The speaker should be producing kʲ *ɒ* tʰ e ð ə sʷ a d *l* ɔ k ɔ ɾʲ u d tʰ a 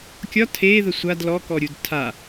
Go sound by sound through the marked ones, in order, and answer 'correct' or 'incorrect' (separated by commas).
correct, correct